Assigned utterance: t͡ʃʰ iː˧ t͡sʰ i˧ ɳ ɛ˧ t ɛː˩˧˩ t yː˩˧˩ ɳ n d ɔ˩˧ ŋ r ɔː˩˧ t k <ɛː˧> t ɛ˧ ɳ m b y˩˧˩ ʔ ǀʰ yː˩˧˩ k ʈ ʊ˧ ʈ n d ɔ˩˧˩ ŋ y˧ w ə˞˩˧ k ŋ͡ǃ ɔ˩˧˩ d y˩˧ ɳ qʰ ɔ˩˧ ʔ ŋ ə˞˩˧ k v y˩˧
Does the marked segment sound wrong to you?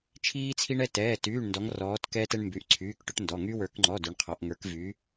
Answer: no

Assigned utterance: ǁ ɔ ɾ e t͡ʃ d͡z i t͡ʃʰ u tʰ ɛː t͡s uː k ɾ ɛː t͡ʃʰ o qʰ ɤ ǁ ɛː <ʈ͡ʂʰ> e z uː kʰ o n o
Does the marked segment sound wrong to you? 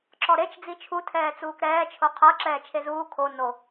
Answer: yes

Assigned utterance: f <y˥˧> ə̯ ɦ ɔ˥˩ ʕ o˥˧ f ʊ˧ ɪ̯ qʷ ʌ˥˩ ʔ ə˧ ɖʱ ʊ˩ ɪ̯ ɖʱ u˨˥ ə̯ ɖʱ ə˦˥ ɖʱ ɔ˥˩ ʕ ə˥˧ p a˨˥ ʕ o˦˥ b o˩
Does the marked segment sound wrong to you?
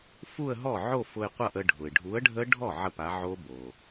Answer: yes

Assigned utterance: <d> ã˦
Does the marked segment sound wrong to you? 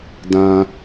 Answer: no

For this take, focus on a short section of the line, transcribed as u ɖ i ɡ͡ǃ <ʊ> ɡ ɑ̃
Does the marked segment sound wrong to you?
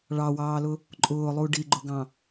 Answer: no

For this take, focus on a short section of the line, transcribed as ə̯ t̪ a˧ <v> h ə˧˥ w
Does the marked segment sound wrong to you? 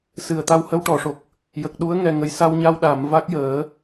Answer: yes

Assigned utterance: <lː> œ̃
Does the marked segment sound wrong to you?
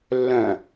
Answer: no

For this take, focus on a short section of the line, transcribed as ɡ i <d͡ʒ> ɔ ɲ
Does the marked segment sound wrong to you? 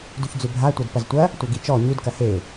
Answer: yes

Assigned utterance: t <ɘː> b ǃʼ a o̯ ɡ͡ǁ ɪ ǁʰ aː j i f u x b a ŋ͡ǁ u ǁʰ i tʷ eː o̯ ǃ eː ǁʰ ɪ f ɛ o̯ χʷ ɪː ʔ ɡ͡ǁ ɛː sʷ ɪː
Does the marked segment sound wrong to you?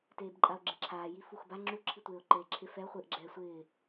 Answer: yes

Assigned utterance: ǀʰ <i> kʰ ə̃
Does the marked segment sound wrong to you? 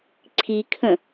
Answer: no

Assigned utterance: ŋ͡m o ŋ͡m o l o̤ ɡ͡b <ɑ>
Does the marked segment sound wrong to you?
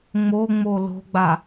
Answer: yes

